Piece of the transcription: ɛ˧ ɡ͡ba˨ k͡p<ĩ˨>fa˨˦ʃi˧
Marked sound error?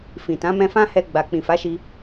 no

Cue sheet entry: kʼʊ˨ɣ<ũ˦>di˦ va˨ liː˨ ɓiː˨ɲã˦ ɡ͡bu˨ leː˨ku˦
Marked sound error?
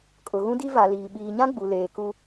no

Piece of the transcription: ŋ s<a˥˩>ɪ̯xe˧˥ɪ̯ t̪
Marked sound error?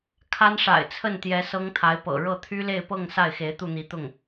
no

